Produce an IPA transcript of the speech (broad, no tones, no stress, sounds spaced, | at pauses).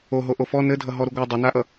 o ɦ o ʔ o f ɔ n ɘ dʱ ʌ ɦ ɔ ɾ u ɡʷ a dˤ ʌ n a ʔ ʌ